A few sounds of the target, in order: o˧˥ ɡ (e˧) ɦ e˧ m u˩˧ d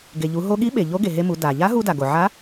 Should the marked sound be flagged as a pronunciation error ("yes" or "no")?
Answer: yes